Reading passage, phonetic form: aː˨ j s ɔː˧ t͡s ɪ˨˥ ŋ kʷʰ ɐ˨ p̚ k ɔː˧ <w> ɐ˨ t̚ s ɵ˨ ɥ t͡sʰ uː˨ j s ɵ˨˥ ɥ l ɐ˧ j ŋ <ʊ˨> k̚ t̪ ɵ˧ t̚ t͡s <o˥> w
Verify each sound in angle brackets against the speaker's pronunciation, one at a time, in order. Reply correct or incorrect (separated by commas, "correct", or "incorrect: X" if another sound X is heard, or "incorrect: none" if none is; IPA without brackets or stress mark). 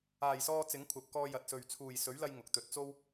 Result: incorrect: j, correct, correct